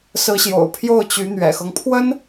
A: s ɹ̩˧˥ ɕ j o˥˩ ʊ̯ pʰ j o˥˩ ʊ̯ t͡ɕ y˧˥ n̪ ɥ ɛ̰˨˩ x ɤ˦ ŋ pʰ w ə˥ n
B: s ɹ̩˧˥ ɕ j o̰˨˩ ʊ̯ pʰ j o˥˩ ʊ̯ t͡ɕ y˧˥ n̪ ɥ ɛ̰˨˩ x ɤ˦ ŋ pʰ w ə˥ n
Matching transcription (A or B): B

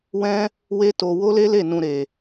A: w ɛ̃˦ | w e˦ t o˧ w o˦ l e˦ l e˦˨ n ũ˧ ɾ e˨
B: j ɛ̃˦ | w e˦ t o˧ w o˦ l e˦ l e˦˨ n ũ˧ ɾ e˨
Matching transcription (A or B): A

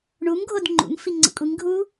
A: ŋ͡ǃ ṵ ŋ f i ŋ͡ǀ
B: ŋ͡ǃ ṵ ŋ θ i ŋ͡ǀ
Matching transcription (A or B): A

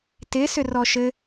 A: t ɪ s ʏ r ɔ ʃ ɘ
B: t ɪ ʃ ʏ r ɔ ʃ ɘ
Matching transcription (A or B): A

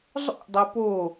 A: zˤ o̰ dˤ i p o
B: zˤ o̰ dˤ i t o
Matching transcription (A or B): A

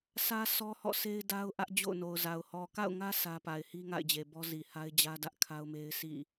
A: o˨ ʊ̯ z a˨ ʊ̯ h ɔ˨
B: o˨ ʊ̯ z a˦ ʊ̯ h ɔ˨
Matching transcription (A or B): A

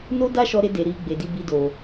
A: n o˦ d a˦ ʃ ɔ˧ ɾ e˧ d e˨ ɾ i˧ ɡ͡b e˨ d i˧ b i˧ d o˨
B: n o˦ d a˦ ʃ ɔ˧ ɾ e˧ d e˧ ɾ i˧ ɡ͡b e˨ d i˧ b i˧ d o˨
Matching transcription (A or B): A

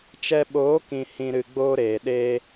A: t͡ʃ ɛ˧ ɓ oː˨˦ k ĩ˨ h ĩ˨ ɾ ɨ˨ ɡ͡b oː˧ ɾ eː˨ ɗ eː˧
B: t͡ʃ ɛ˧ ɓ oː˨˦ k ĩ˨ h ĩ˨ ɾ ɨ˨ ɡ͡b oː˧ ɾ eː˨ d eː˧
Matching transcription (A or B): A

